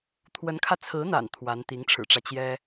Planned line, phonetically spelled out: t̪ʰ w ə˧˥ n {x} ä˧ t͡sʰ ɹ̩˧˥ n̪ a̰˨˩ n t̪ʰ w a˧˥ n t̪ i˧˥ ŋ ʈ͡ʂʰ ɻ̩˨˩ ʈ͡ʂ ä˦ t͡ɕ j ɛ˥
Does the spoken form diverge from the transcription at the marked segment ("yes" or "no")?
yes